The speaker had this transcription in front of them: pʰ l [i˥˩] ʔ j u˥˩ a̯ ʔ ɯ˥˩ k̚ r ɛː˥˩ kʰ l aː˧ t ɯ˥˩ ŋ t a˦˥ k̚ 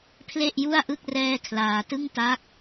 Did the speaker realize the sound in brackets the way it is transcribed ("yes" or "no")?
no